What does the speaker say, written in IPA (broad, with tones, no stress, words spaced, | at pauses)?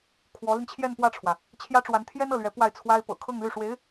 kʰwɔ˧˥li˧n t͡ɕʰjɛ˥˧npwä˥˩ʈ͡ʂʰwä˩ | t͡ɕʰjä˥ʈ͡ʂwa˧˥n t̪ʰjɛ˥nɤ˥˩lɥɛ˧˥ pwa˥˩ɪ̯ t͡sʰwa˥ɪ̯ pɤ̰˨˩ kʰɤ˥˧ŋly˥˩ʂwe˧˥ɪ̯